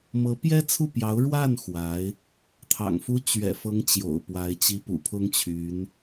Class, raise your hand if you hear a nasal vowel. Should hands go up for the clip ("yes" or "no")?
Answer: no